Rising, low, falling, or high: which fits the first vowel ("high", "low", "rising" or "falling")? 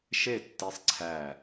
falling